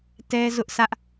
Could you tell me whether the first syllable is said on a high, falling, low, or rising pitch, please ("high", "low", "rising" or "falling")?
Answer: high